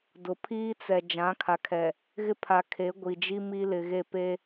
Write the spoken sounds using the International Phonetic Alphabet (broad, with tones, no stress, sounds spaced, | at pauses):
d ʊ˨ pʰ iː˦ t͡s ɛ˨ d͡ʒ ã˨˦ kʰ a˨ kʰ ɛ˨ | ɣ ɪ˦ pʰ a˨ kʰ e˨˦ ɡʷ i˨ d͡ʒ i˦ m iː˦ l ɪ˨ ɣ e˦˨ p e˦